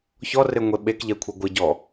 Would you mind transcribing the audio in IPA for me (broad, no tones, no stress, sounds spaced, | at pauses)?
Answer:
ç ɔ r e ŋʷ e ɓ e k ʎ ɛ kʷʰ ɛ ɡʷ ɪ ɟ ɔ